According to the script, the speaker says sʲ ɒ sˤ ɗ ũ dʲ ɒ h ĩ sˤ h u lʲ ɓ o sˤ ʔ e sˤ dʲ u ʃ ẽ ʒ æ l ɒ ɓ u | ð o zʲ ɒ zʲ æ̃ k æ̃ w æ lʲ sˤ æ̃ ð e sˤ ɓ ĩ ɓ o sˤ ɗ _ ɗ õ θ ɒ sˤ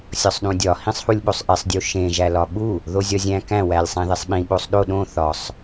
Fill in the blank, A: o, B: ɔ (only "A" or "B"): A